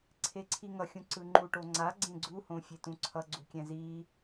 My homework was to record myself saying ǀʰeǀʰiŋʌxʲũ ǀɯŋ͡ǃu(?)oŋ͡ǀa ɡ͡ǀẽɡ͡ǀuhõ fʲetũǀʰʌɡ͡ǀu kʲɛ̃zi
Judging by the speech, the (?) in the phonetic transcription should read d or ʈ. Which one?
ʈ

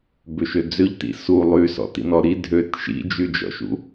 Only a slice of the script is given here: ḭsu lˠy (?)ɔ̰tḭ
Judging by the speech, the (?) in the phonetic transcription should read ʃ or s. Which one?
s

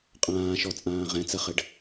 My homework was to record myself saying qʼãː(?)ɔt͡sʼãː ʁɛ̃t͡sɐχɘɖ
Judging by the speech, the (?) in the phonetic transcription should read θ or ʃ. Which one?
ʃ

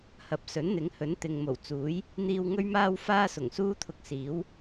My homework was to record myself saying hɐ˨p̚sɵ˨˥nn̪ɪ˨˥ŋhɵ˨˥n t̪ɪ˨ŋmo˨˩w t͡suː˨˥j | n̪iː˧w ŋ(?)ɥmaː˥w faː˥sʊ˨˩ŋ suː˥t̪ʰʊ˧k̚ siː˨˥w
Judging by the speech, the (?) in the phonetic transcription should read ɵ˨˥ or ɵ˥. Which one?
ɵ˥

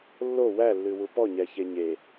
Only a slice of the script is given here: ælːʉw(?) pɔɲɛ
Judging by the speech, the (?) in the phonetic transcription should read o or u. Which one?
u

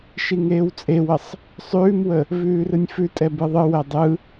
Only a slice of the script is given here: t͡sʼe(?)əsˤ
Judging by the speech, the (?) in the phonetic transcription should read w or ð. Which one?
w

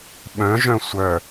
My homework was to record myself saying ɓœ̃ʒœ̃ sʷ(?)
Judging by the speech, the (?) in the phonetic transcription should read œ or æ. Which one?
œ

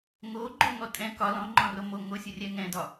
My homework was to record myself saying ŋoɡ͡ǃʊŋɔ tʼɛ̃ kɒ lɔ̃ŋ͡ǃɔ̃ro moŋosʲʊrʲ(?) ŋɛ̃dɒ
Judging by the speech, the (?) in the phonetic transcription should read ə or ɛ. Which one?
ɛ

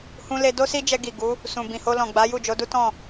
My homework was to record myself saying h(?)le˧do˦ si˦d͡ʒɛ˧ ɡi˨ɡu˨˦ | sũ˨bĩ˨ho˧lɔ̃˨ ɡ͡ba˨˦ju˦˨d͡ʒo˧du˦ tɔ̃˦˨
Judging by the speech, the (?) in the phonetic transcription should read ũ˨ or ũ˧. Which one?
ũ˧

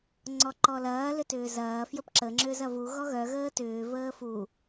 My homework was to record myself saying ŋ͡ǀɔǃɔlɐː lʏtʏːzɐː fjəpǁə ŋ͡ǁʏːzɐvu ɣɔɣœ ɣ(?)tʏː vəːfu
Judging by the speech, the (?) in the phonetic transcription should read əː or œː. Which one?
əː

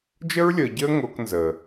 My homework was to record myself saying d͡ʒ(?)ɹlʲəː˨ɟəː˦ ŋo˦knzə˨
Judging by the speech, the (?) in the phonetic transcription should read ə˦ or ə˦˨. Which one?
ə˦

